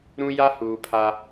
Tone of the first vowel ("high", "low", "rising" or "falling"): high